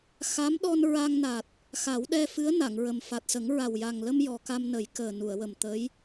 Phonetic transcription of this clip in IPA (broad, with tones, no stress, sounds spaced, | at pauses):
x a˧˥ m ɗ ɔ˧ n ɹ a˧ ŋ n a˨˩ t̚ | x a˨˩˦ w ɗ ɛ˧ f ɨ˧˥ ə̯ n a˨˩˨ ŋ ɹ ə˨˩ m f a˨˩ t̚ s ə˨˩˦ ŋ ɹ a˨˩ w j a˨˩ ŋ l ə˧ m j ɔ˨˩ k a˧ m n ə˨˩˦ j k əː˨˩ n u˨˩˨ ə̯ w ə˨˩ m t̪ ə˧˥ j